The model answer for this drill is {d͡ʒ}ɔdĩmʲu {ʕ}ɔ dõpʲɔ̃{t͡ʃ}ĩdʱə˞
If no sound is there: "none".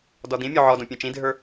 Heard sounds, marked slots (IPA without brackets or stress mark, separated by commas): d, ʕ, t͡ʃ